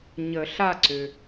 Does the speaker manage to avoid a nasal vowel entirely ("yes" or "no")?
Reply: yes